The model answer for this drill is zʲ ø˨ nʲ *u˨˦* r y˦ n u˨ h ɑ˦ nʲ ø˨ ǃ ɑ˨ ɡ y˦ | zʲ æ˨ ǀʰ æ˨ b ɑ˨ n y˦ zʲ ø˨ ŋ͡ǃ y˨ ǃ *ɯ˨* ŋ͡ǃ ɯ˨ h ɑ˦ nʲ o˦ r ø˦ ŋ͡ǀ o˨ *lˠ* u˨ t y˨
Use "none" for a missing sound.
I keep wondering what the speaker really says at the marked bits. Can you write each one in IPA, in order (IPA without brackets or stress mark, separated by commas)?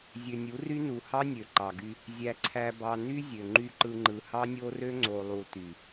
u˨˦, ɯ˨, lˠ